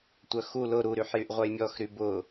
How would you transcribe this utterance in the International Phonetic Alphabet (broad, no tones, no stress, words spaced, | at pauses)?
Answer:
tʷœxu lʊ ɾuɾyħjyʔ ʁʷœjmʲɔxɾy bʊ